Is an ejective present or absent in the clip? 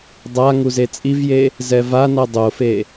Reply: present